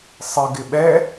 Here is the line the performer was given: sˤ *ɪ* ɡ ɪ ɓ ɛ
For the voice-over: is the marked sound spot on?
yes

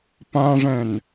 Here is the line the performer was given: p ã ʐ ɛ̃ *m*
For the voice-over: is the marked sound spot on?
no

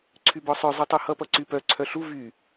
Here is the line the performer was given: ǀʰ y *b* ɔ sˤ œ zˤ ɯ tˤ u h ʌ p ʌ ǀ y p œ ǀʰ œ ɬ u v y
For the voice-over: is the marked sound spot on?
yes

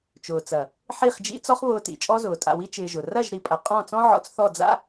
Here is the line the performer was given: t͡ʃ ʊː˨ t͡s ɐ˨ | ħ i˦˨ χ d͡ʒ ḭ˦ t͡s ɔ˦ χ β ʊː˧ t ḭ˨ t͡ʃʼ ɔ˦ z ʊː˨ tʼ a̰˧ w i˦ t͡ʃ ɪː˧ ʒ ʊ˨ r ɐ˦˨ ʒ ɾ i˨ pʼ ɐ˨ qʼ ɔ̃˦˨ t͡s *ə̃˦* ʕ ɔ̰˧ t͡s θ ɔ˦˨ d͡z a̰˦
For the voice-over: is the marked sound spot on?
no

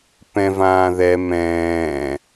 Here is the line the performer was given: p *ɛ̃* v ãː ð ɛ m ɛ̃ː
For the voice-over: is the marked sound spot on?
yes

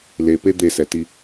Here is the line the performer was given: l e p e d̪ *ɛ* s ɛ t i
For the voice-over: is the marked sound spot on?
no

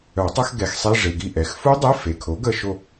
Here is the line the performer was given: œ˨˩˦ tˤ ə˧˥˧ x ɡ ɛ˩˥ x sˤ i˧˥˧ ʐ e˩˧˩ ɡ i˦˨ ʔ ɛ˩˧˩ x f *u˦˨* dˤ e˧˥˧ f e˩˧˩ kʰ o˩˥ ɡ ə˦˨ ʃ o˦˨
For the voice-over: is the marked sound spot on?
no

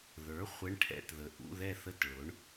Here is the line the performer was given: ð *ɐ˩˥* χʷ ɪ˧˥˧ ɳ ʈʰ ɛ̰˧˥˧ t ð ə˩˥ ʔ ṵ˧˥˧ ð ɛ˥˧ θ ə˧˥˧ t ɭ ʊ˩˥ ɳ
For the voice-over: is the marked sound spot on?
no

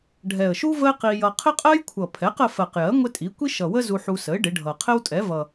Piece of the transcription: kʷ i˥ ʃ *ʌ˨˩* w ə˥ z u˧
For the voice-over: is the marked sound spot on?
yes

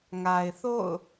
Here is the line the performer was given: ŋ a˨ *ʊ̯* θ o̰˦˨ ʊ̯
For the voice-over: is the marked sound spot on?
no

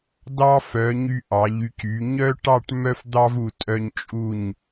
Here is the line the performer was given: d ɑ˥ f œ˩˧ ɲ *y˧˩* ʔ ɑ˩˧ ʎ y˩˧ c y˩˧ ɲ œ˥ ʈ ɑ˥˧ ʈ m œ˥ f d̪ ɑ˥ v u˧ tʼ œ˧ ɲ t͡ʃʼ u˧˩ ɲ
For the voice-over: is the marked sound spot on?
no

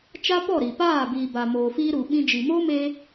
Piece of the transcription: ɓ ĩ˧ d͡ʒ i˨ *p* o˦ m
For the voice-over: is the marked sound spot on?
no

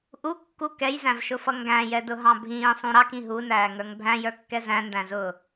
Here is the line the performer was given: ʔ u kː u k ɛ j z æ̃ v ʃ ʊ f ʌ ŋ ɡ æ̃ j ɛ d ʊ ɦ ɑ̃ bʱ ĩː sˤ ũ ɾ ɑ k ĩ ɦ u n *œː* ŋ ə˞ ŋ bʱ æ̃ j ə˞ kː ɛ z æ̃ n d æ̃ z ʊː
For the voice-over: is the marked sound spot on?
no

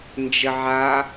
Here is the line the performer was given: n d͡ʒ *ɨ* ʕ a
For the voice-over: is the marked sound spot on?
no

